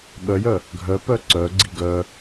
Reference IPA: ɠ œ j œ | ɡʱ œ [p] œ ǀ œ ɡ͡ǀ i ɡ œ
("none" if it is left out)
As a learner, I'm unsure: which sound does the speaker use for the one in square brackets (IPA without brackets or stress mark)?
p